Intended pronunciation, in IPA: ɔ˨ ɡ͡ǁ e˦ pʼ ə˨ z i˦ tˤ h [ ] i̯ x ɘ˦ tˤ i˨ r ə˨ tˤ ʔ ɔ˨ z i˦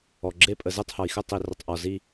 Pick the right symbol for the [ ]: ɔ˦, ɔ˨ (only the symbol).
ɔ˨